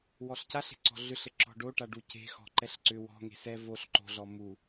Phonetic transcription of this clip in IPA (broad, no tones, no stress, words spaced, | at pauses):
wɔɬcaɬe̤ǀɔ̤ ɮʏɬɘ ǁɔ̤ɖo ʈaɖuce̤ xɔ̤ǃɛɬǀʏ wɔ̤ ŋe̤sɛ voɬ ǃo̤ɮɔ mu